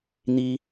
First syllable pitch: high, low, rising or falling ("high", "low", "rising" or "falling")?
high